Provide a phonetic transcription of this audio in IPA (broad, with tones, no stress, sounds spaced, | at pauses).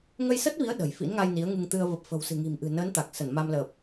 ŋ ə˧ j s ə˦˥ t̚ v i˨˦ ə̯ ɗ ə̤˨˩ j f ḭ˧˥ n ŋ a˧ j n i˨˦ ə̯ ŋ ɨ˧ ŋ t̪ ɨ˧ ə̯ v ə˨˩ p̚ f ə̤˨˩ w s ɨ̤˨˩ ŋ i̤˨˩ m ʔ ɨ̤˨˩ n əː˨˦ n t̪ a˨˩ k̚ s ə˧˩ n m a˧ m l ə˨˩ p̚